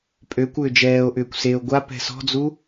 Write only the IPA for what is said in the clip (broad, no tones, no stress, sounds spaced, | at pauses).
pʼ ø kʷ ʏː d͡ʒ ɛː o̯ ʔ ʏː kʷ s e o̯ ɡʷ a p ɛ̤ s ɔ̤ d͡z u